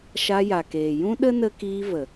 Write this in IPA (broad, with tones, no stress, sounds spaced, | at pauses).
ʃ a˧ j a˨ k eː˨ j ũ˦ ɗ ə˦ n ə˧ k iː˧ v ə˨